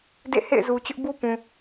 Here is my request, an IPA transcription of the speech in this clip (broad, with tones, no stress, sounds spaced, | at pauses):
d ḛ˦˨ h ḛ˦˨ ɪ̯ z u˨ t͡ɕ ʊ˦ ʔ b u˦ p ũ˨